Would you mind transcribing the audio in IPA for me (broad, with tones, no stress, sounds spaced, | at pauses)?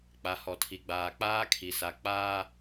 k͡p a˨ h ɔ˨ tʰ i˨ ɡ͡b aː˨ k͡p aː˦ kʰ i˨ s a˨ k͡p aː˦